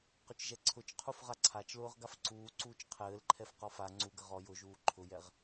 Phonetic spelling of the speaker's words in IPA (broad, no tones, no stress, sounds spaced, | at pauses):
q ʊ t͡ʃ ʒ ɛ ǀʰ ʊ t͡ʃ qʰ u f ʁ a ǀʰ a t͡ʃ l ʊː ʁ ɡ a f ǀ uː ǀ uː t͡ʃ qʰ ɘː l ǃʰ ɛ f q ɔ f a ŋ͡ǀ u ɡ ə ʁ ɔ j ʊ ʒ uː ǃʰ ʊ j ɛ ʁ